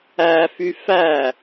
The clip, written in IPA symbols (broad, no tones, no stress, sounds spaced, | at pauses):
æ f y f æ